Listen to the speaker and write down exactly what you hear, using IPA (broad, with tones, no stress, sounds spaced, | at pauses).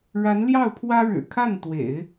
ɻ a˧˥ n l j ɑ˥˩ ʊ̯ pʰ w ä˥ ɻ ɻ̩˨˩ kʰ a˥˩ n t̪ w ḛ˨˩˦ ɪ̯